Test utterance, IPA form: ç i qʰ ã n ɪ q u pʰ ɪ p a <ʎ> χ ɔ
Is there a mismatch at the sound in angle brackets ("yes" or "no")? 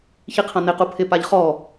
no